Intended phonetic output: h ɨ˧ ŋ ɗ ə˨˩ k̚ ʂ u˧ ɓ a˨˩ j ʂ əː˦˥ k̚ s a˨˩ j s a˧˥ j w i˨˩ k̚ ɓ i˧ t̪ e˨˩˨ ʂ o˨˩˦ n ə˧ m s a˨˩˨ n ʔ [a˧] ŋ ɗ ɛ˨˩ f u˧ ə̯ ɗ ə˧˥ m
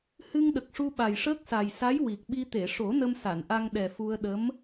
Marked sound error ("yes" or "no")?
no